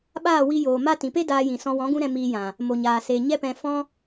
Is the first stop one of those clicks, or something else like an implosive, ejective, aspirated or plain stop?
implosive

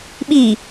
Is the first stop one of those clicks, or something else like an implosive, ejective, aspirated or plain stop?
implosive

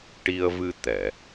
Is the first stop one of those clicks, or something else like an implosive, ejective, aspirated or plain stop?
plain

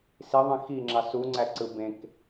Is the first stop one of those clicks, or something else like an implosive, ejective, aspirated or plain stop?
click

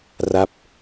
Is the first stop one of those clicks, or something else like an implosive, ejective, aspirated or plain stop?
plain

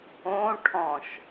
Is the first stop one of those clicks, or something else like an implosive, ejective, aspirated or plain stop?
aspirated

